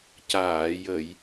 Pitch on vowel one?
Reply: low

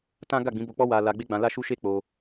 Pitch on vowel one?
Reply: high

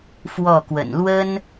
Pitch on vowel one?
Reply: falling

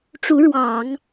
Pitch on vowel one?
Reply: rising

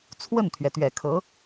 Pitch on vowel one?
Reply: falling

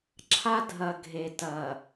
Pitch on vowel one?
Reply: high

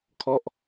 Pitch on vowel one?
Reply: falling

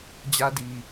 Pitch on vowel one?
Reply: high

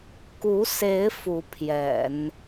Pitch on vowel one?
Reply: rising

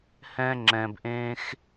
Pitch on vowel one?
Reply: high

